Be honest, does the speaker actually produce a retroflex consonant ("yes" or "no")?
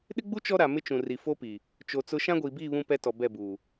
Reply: no